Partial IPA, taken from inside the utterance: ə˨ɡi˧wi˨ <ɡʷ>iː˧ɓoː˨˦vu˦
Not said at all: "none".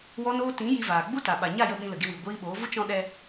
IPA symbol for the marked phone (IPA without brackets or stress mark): ɡʷ